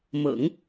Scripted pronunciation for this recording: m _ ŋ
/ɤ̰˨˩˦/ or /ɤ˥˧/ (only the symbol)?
ɤ̰˨˩˦